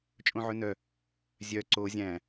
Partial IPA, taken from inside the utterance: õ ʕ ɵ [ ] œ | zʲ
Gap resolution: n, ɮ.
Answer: n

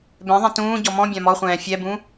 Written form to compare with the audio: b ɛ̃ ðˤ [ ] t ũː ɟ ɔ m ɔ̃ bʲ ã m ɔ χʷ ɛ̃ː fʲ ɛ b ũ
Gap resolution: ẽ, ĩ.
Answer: ẽ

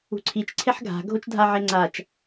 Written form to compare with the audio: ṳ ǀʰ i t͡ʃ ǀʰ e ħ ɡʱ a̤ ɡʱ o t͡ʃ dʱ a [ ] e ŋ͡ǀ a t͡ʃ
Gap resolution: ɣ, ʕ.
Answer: ʕ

